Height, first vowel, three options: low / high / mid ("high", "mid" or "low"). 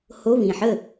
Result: mid